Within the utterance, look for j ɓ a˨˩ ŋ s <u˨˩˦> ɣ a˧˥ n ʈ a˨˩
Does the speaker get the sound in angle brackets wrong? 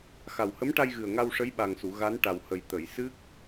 yes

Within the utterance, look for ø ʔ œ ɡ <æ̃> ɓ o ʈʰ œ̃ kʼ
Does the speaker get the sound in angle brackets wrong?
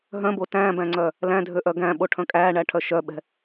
no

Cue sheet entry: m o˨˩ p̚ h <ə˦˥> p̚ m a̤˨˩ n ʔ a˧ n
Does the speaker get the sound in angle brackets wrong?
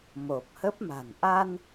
no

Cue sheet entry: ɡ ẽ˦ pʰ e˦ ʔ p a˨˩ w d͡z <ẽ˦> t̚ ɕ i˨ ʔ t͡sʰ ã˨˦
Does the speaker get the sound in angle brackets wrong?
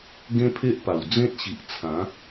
no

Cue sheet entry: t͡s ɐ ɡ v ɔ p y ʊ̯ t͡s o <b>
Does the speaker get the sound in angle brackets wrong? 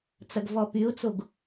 yes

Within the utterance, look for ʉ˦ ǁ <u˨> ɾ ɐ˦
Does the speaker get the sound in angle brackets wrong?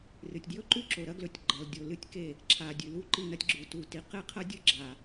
yes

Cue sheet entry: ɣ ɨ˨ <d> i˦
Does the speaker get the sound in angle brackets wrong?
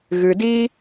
no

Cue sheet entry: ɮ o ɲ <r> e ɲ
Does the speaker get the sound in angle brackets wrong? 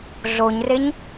no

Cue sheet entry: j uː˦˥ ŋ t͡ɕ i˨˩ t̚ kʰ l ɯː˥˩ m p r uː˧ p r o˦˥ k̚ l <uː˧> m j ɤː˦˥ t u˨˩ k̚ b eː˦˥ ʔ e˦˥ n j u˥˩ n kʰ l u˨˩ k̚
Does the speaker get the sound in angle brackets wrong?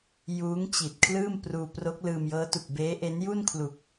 yes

